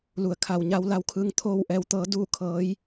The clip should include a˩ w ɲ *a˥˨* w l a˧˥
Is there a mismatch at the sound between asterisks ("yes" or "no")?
yes